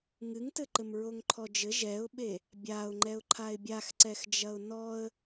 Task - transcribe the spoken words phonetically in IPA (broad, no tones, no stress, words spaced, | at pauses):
ŋɨŋtɘ ǃɘmɹoŋǃʰɔd͡ʒɘ ʒɛʊ̯ɓe | bʲaʊ̯ŋ͡ǃɛʊ̯ ǃʰaɪ̯bʲaxǀɛxd͡ʒɐʊ̯ nɔə̯